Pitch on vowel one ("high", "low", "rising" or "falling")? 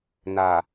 low